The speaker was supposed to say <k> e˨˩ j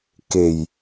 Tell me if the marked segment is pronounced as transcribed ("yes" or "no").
yes